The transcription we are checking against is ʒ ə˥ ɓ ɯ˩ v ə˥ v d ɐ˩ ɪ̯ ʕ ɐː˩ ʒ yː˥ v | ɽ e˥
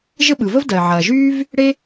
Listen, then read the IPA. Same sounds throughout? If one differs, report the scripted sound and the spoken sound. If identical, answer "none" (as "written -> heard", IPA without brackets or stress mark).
none